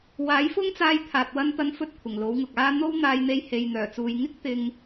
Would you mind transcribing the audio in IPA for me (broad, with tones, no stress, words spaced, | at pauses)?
waː˨˥jfʊ˥ŋt͡saː˧j t̪ʰaː˨t̚wɐ˧nt̪ɐ˧n fɵ˥t̚kʷʰɪ˨˩ŋlo˨˥wŋʊ˨k̚ aː˧ n̪o˥w n̪aː˧jn̪e˧jhe˨j n̪œː˨˩t͡suː˨jŋɪ˥k̚ t̪ɪ˧ŋ